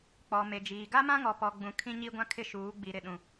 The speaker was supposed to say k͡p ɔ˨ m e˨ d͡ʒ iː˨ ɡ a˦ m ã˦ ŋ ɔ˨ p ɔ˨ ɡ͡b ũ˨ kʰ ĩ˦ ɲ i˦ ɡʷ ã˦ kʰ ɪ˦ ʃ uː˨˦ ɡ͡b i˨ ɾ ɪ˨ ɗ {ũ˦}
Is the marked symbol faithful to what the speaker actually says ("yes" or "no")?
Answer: no